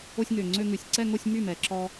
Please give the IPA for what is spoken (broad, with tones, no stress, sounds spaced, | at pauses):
o˧ sʲ ŋ ø˨˩ ŋ͡ǀ ø˧ ŋ ʉ˨˩ sʲ ǀ ɛ˥˧ ŋ o˥˧ sʲ m y˥˩ m ɛ˨˩ ǁ ɔ˧